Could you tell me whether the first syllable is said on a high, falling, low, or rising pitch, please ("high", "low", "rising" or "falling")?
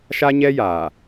high